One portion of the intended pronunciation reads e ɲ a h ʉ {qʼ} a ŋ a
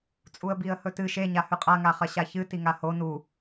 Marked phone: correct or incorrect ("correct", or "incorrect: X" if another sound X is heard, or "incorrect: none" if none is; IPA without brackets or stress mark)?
correct